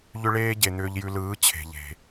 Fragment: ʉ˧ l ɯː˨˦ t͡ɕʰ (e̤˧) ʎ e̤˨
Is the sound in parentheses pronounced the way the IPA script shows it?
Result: no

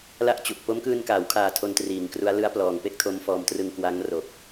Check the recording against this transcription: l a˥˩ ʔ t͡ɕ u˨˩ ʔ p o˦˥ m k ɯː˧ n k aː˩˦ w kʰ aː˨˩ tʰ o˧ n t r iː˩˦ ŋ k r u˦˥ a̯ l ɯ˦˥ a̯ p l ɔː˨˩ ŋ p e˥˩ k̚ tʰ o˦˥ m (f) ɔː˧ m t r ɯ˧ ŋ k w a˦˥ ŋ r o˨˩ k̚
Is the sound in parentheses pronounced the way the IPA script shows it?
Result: yes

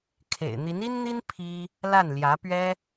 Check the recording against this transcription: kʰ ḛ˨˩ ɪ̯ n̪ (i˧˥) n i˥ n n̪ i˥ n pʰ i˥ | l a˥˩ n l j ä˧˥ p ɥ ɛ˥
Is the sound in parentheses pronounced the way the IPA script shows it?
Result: yes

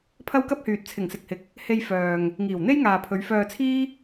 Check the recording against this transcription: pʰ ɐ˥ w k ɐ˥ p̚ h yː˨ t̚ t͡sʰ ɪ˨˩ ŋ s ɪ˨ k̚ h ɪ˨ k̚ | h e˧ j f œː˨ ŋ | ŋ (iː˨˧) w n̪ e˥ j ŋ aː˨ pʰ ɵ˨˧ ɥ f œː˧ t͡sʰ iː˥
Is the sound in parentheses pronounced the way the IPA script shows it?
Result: no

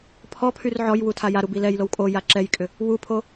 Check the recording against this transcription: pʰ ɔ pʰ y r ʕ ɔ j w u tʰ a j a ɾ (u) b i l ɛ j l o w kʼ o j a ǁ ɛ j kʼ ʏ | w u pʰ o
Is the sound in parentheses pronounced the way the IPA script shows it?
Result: yes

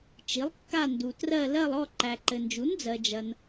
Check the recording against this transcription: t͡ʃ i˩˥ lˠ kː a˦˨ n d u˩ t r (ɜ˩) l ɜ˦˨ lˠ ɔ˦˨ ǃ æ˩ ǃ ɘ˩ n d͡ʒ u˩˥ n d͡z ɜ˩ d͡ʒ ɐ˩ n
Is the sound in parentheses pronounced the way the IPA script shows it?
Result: no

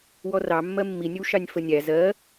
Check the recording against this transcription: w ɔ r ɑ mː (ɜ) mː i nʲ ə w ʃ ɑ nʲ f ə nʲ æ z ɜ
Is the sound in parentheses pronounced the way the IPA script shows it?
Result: yes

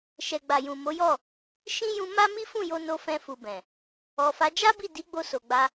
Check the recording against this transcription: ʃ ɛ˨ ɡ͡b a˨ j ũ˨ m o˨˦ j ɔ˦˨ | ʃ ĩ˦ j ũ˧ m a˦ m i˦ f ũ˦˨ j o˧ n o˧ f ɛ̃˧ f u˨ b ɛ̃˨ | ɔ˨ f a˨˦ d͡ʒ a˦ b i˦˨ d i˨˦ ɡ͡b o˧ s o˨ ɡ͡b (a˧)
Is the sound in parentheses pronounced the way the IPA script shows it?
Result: yes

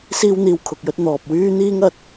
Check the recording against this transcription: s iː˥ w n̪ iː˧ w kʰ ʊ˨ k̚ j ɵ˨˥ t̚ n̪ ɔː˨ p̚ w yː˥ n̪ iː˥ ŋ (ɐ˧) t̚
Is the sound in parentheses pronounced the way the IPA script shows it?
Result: yes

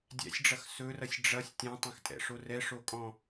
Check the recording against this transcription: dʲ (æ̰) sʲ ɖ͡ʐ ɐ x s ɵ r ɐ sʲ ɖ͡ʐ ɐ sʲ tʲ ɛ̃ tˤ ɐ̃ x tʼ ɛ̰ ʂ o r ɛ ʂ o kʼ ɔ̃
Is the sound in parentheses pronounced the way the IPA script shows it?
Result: yes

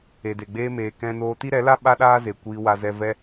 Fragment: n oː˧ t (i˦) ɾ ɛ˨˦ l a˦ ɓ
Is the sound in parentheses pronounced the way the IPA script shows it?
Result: yes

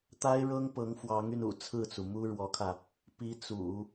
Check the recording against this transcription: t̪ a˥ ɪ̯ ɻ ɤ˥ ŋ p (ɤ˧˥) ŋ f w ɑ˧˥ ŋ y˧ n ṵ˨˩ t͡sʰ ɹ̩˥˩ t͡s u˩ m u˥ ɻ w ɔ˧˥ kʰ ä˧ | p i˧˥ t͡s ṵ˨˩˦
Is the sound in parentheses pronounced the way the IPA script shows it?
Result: yes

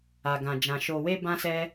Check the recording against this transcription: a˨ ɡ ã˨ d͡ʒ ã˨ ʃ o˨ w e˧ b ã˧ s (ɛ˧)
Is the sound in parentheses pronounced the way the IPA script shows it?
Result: yes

